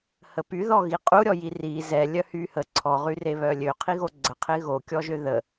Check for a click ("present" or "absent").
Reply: present